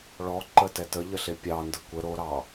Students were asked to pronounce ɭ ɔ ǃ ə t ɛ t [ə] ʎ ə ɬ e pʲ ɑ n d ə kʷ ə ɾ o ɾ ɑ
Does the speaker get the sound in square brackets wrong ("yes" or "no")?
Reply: no